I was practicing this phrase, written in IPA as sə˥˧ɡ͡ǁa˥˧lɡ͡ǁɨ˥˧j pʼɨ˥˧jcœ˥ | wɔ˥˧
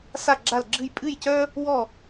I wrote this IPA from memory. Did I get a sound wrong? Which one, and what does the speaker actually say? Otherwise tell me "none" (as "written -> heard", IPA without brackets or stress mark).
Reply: ə˥˧ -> a˥˧